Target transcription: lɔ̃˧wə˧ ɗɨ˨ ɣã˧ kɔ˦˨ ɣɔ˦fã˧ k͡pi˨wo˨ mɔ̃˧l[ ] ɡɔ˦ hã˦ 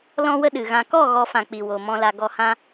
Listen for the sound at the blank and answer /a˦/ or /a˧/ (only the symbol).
a˧